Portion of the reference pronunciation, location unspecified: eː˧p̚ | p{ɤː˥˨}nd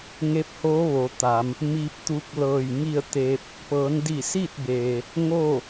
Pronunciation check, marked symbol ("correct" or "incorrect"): incorrect